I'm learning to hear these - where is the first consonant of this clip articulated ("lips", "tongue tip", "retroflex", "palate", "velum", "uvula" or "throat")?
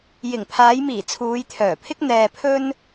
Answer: palate